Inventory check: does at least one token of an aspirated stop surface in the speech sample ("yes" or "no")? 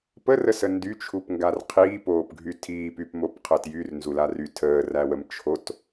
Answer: yes